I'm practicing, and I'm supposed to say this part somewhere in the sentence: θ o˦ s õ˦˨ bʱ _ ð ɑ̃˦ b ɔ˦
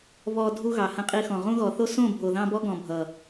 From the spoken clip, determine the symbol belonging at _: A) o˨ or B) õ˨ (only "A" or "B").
A